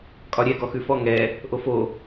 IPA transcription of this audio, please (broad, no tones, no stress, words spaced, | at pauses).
kʼɒɾʲɛ ɡɔxʉfɔ ŋɛ | ʔofo